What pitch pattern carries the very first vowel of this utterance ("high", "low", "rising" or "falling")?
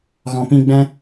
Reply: low